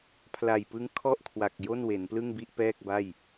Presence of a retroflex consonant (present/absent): absent